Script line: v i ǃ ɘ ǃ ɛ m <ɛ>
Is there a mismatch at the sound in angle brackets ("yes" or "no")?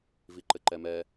no